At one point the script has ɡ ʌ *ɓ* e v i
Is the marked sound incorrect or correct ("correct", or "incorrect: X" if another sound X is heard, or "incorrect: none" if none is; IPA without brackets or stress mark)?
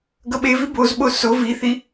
correct